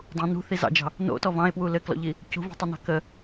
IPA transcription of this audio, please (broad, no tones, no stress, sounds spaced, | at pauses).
dˤ ũ n ṳ θ i z ɑ̰ d͡ʒ ɑ̤ | n o̰ t ɔ v ɑ̃ e̯ p w u l ɘ k l ɔ̰ ʎ i | c ṳ v ṳ tˤ i n ɑ̤ k ə